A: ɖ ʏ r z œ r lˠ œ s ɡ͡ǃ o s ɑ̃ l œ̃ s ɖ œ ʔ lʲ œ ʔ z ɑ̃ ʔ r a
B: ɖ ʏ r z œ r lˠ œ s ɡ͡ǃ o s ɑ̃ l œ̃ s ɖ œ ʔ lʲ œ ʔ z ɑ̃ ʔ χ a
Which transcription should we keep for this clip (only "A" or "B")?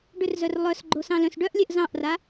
A